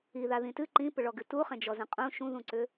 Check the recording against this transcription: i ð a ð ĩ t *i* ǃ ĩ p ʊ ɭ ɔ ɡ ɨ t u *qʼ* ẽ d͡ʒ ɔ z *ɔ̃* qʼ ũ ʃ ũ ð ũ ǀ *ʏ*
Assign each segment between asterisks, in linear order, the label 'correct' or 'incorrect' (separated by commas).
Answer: incorrect, incorrect, incorrect, correct